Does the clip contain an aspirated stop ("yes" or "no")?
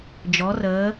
no